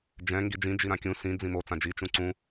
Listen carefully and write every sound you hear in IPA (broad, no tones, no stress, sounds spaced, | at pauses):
d͡ʒ ɛ̃ ŋ ɡ i d͡ʒ ĩ d͡ʒ i ɾ ã kʲ ũ s ĩ d͡z ĩ m o t͡s ã d͡ʒ i t͡ʃ ũ ǀ ũ